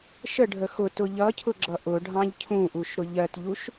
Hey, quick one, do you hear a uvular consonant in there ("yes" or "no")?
no